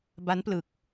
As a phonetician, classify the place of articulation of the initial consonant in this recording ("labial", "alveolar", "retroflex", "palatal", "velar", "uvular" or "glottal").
labial